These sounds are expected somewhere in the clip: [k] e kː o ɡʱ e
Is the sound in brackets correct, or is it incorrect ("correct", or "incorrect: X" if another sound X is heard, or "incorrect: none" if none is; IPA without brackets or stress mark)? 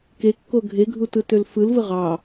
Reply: correct